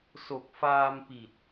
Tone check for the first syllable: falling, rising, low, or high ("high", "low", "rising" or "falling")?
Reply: low